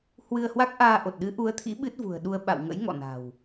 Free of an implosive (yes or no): no